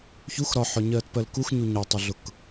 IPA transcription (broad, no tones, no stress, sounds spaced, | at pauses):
ç u x ɾ ɒ ħ ɔ ɲ ɜː t p ɜ l k u x ɲ u ɲ ɒ tˤ ʊ ɮ ʊ k